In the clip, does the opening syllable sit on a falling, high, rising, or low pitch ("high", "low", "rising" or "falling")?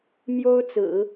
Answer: high